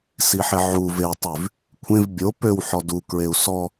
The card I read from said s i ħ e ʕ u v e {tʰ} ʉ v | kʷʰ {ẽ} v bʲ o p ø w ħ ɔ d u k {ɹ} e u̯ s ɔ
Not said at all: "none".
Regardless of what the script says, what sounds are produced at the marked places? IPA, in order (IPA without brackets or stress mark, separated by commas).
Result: tˤ, ẽ, ɹ